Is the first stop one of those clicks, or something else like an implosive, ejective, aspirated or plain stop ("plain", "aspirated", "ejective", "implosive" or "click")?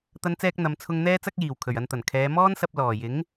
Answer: plain